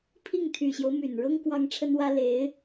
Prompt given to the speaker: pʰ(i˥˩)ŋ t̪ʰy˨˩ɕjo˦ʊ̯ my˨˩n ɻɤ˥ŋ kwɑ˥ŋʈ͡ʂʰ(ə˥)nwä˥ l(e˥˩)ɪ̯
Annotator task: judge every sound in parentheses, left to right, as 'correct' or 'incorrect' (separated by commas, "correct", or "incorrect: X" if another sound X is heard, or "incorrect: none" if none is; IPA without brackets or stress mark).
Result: correct, correct, incorrect: e˧˥